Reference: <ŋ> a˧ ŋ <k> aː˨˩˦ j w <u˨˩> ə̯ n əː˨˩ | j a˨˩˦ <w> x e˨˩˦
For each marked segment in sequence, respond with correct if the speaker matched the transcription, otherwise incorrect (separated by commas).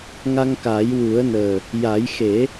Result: correct, correct, incorrect, incorrect